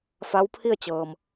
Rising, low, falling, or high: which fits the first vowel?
rising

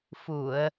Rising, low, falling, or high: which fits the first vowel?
low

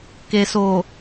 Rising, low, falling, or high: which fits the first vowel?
low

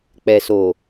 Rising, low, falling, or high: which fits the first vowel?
low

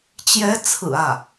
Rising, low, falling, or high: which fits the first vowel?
rising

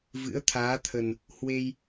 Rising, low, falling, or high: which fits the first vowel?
rising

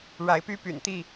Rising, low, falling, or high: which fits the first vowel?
rising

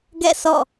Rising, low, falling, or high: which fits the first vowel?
falling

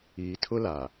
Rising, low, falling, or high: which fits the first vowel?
low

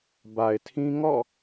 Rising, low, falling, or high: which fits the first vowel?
low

